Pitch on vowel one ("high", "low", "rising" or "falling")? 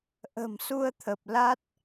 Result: low